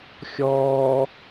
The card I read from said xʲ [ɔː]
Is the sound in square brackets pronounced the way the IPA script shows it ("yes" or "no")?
yes